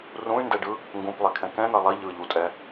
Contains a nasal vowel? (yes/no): yes